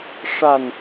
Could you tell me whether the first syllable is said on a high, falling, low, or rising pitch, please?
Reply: falling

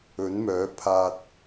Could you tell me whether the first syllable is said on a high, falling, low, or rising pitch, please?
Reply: rising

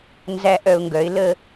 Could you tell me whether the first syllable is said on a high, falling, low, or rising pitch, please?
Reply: high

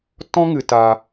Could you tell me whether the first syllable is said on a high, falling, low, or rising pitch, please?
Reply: high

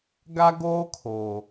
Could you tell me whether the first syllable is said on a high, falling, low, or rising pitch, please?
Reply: high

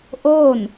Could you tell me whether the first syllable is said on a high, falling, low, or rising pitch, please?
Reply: falling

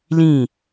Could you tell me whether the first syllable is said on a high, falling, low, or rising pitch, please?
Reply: falling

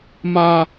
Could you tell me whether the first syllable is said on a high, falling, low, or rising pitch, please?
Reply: high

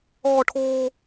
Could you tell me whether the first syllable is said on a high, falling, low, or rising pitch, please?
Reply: high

